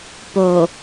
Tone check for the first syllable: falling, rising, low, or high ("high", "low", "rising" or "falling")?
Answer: low